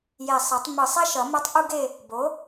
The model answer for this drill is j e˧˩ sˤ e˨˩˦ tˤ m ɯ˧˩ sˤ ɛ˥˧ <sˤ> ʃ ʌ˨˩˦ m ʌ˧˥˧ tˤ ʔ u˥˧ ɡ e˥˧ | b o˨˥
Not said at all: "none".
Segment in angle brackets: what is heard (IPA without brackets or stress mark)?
none